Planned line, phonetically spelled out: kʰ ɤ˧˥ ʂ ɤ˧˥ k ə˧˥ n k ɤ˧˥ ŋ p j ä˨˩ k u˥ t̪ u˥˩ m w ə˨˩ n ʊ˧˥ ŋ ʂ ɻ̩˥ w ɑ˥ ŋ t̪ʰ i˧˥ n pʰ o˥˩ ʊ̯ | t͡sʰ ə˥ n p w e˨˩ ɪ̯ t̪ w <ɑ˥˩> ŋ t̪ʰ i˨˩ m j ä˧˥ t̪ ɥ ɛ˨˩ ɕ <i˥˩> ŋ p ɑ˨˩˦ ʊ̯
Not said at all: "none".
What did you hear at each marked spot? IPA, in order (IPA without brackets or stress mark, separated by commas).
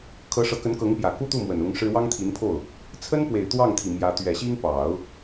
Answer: ɑ˥˩, i˥